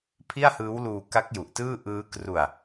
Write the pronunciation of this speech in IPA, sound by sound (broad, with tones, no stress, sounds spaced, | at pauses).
pʰ i˥˩ a̯ h ɯː˦˥ w l uː˧ k a˦˥ k̚ j u˨˩ ʔ t ɯː˥˩ ʔ ɯː˦˥ k r u˧ a̯